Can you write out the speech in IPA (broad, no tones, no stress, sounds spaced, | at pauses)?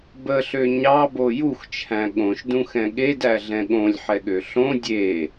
b ə ɬ ø ɲ ɑ b o j u x t͡ʃʰ æ̃ ɠ õ ʃ d ũ x ɛ̃ ɠ e d æ ɮ ɛ̃ ɠ õ lʲ ħ ɛ ɠ ø ɬ õ dʲ e